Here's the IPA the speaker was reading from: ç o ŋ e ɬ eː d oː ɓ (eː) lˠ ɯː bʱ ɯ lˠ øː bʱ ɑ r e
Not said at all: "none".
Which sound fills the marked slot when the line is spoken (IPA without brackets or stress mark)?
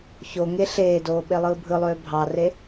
e